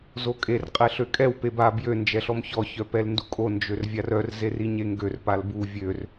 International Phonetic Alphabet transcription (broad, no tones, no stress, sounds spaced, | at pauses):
z o kʼ e r qʼ ɛ ɬ ø kʼ ɛ w p e b a b j ø n d͡ʒ ɛ ɬ ɔ m ç ɔ ç œ p ɛ l n d u kʼ o n d͡ʒ ø r vʲ a r œ r z e r i ɲ e ŋ ɡ ø r p a l b u vʲ ø r